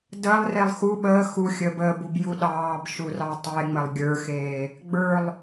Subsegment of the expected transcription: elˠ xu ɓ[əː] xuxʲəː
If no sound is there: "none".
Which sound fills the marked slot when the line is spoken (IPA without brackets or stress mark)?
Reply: əː